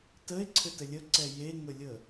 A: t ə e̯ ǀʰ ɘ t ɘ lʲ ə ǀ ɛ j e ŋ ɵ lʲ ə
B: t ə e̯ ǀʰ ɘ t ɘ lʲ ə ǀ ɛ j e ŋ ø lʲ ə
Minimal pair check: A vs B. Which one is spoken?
A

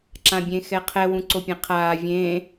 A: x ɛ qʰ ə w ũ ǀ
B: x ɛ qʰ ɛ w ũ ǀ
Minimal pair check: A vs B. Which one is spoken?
B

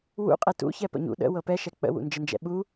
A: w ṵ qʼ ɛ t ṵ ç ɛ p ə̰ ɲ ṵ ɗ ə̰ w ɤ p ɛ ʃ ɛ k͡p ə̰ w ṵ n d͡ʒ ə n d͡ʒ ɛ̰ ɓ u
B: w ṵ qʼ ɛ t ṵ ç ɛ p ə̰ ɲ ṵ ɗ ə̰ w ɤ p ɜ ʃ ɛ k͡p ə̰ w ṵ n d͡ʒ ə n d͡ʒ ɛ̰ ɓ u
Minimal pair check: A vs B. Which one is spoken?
A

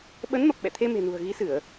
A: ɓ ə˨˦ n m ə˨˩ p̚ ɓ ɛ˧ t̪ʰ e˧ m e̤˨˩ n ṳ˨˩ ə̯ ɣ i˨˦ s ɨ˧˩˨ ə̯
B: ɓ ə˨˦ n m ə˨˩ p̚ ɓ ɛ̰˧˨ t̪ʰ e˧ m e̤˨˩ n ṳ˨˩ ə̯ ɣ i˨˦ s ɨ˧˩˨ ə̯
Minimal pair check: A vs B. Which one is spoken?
B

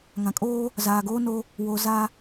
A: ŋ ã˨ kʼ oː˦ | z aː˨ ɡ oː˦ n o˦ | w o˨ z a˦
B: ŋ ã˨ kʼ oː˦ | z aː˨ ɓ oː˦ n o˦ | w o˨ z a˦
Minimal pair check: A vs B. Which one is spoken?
A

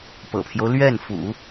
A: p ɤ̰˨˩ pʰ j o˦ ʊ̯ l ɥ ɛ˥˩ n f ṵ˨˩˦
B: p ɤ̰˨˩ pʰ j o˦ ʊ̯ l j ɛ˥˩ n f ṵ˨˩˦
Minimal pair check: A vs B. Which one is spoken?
A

